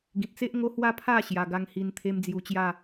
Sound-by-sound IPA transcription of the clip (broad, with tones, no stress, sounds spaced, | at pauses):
ɡ ĩ˨ t̚ t͡s e˦ ʔ ŋ o˦ h w a˥˧ pʰ a˥˧ ɕ j a˧ ɡ a˦ ŋ h i˧ n t̪ʰ e˦ m d͡z j u˧ t͡ɕ j a˥˧